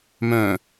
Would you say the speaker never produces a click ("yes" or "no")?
yes